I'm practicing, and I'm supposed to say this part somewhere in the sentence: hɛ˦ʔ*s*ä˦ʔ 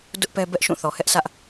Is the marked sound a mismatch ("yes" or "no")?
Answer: no